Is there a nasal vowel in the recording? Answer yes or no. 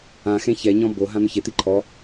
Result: yes